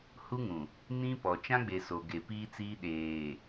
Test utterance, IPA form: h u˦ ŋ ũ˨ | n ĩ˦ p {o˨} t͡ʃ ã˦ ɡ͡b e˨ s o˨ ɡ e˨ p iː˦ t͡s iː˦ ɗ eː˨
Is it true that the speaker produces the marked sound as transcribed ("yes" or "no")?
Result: no